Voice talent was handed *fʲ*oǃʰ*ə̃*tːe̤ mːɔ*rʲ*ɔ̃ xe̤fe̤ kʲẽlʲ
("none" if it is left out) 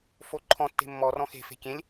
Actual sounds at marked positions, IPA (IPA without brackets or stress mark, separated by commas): f, ɔ̃, r